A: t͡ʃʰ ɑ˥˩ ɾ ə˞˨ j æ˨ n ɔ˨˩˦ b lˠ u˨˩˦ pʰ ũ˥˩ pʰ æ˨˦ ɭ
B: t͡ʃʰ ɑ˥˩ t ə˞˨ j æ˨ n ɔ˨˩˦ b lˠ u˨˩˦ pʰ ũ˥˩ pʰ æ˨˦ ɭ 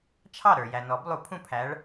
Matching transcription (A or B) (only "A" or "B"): A